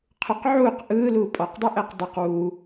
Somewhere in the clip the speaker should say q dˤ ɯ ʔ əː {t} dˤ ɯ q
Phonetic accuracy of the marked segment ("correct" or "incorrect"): incorrect